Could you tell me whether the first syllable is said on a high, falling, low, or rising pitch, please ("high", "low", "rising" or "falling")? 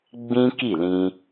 high